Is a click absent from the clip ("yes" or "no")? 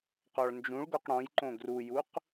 no